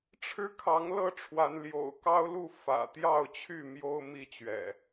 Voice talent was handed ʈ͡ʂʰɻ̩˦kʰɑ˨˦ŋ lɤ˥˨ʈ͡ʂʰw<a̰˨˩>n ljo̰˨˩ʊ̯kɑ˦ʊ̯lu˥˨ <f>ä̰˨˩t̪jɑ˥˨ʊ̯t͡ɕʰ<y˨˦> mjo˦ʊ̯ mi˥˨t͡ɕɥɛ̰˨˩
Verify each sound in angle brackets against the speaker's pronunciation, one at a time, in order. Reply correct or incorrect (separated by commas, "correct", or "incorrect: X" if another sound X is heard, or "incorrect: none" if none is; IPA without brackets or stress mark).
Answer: incorrect: a˨˦, correct, incorrect: y˥˨